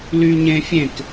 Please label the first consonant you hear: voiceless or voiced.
voiced